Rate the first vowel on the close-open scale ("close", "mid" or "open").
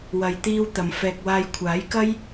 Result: open